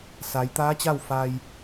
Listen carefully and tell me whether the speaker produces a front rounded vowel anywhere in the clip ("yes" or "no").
no